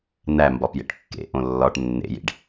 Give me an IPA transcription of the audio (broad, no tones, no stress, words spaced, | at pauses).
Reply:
næ mbɒpjḛʈkːḛʔõ lːɒʈ nːḛjḭɖ